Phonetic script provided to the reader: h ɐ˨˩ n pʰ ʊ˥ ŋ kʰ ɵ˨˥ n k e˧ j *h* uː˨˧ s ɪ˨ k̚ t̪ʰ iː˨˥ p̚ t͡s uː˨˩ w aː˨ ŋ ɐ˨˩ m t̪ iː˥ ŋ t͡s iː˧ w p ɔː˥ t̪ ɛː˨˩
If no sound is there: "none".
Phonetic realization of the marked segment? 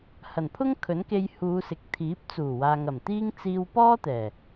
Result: h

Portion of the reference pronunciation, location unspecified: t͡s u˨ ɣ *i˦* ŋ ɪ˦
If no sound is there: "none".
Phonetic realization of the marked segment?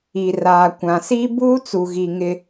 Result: i˨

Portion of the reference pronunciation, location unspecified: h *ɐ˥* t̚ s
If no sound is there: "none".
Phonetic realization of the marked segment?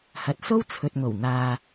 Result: ɐ˨˥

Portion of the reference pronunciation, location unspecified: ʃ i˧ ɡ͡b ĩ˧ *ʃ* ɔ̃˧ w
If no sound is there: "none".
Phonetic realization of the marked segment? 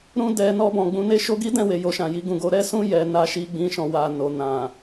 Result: ʃ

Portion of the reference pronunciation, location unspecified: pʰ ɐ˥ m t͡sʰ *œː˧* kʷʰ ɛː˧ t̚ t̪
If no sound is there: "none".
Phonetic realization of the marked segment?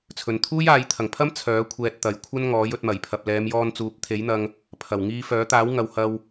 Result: œː˨˥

